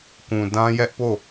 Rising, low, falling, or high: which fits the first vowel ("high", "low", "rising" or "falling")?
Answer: low